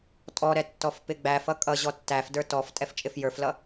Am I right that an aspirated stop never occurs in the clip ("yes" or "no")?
yes